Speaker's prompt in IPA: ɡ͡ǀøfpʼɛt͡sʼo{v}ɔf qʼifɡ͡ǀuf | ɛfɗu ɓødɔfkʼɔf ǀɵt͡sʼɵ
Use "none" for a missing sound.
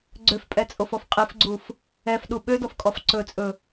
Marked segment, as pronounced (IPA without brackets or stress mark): f